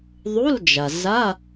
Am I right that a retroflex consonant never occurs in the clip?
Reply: yes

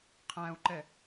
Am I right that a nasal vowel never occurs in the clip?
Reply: no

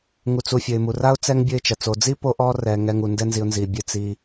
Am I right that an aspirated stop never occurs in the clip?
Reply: yes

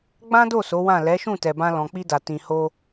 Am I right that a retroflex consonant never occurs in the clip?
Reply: yes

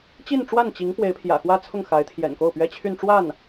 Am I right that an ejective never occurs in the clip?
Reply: yes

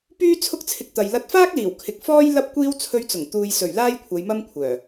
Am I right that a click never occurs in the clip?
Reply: yes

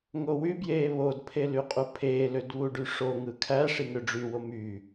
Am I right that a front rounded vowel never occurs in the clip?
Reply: no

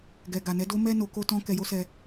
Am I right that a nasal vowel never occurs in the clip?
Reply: no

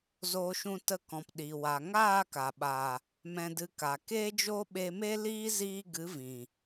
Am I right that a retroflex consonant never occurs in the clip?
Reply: yes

